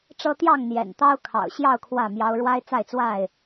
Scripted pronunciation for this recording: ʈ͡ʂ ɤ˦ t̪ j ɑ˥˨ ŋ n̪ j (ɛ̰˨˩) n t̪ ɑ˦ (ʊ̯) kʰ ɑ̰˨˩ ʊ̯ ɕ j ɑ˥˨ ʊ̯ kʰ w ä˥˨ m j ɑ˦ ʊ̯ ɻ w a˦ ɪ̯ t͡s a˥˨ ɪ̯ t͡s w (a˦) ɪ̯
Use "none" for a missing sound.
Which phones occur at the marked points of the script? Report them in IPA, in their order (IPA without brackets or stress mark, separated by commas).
ɛ̰˨˩, ʊ̯, a˥˨